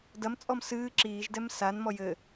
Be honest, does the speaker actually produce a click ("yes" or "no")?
yes